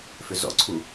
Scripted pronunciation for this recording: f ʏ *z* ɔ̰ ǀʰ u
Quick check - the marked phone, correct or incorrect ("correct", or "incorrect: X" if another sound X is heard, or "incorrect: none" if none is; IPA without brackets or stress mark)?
correct